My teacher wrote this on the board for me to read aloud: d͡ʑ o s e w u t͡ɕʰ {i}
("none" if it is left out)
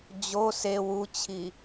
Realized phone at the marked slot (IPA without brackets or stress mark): i